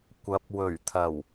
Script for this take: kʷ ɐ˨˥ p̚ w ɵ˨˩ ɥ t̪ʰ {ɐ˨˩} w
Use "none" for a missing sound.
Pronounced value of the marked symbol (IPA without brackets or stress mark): ɐ˨˩